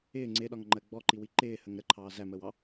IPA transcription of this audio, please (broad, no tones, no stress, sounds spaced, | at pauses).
ɪː ŋ͡ǀ ɪː ɗ ɒ ŋ ŋ͡ǃ ɜ ɡ͡b ɔ ǃ i w i ǃ ɪː h ə ŋ ɾ ə ǃʰ ɑː z æ m əː w ɑ